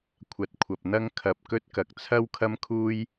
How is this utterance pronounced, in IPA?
kʷʰ ɐ˨˥ t̚ kʷʰ ɐ˨ p̚ n̪ ɐ˥ ŋ kʰ ɐ˧ p̚ k ɵ˥ t̚ k ɐ˧ k̚ t͡sʰ ɐ˥ w kʰ ɐ˥ m kʰ uː˥ j

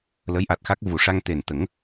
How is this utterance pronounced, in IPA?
l ə˧˥ j ʔ a˨˩ t̚ x a˦˥ k̚ v u˨˩ ʂ a˧ ŋ t̪ e˨˩ n t̪ ə˨˩˦ ŋ

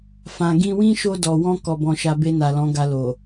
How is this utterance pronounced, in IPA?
f ã˨ ɡ ĩ˧ w ĩ˦ ʃ o˧ d ɔ˨ w ɔ̃˧ k ɔ˨ b ɔ̃˨ ʃ a˨ b e˧ n a˨ l ɔ̃˨˦ ɡ a˧ l o˨

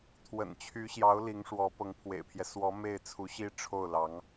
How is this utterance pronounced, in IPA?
t̪ʰ w ə̰˨˩ n t͡ɕʰ y˧˥ ɕ j ɑ˧˥ ʊ̯ l i˧˥ ŋ ʂ w ɔ˧˥ p ɤ˧˥ ŋ pʰ w ḛ˨˩ ɪ̯ pʰ j ɛ˦ s w ɔ˧˥ m e˥˩ ɪ̯ t͡sʰ u˧˥ ɕ i˥ ʈ͡ʂʰ o˥˩ ʊ̯ l ɑ˧˥ ŋ

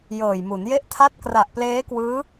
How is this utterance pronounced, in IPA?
j ɤː˨˩ j m u˩˦ n j e˦˥ ʔ tʰ a˦˥ t̚ k r a˨˩ ʔ p l eː˦˥ k w ɯː˦˥

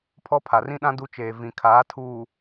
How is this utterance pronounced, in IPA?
pʰ ɔ˦ pʰ a˨ r ĩ˦ ɗ ã˦ d u˦ t͡ʃ eː˨ v ĩ˨ kʰ aː˨˦ tʰ uː˨

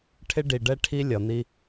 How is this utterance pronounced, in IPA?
ʈʰ ɪ˦ ɖ i˨ ɖ ɛ˦ ʈʰ i˦ lʲ ʌ˨ n̪ i˦

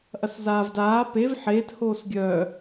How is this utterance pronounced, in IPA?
ʔ ɐ s z aː v d aː p e v ħ eː t h oː s ɡʲ œ

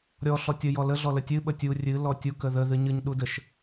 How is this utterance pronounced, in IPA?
ɾʲ ɔ ɬ ɔ tʲ ə j ɔ l ə ɮ ɔ l ə tʲ ɨ ɓ ə tʲ u rʲ ɨ l ɔ tʲ u k ə ð ə ð ɨ ɲ ɨ ɲ ɗ u d ə ʃ

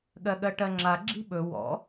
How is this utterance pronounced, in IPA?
ɠ ɜ ɠ ɜ ʈ ɜ ŋ͡ǁ a ɡ͡ǁ i̤ ɓ ɵ w ɔ̰

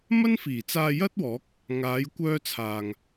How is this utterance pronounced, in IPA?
m ɐ˥ n f iː˨˩ t͡s aː˧ j ɐ˥ t̚ w ɔː˨˥ k̚ | ŋ aː˨˧ j kʷ œː˧ t͡sʰ aː˨ ŋ

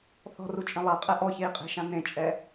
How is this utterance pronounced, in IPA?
θ ɔ̤ r u t͡ʃʼ ẽ lˠ a qʼ ɛ ʔ ɔ ç e i̯ qʼ e̤ ʃ ã n ẽ t͡ʃʼ ɛ

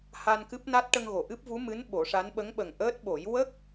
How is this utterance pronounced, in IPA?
h a˧ n k ɨ˦˥ p̚ n a˦˥ t̚ ʈ ə˧ ŋ ɣ o˨˩˨ ʔ ɨ˦˥ p̚ v u˧˥ m ɨ˧˥ n ɓ o˨˩˦ ʂ a˧˥ n ɓ ə˧˥ ŋ ɓ ə˨˩ ŋ ʔ əː˦˥ t̚ ɓ o˨˩˦ j w ə˦˥ k̚

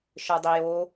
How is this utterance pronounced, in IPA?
ʃ ə˞ dˤ i j o

